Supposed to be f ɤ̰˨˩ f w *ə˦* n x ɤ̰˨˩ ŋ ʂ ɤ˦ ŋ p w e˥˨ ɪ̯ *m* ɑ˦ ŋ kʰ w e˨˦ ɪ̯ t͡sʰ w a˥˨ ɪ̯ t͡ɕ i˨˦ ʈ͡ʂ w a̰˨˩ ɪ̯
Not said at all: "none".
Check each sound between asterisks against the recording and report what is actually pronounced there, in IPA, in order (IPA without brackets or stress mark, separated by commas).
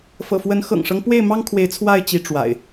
ə˨˦, m